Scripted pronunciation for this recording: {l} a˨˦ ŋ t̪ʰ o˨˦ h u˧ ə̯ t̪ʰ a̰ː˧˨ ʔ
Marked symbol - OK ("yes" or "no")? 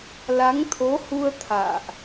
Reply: yes